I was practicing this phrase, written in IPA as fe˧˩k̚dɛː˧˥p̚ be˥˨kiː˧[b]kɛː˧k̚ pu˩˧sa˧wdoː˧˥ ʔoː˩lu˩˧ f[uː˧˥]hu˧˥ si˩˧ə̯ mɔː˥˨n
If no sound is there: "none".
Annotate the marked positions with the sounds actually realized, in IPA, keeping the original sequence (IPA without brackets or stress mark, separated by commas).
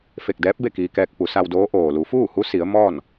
none, uː˥˨